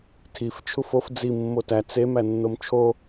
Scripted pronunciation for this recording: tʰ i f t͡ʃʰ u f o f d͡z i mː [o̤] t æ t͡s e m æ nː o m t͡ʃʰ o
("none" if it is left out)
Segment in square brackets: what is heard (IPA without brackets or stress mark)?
o